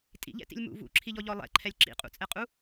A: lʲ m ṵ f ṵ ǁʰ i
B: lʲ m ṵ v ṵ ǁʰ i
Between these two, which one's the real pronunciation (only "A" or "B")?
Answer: B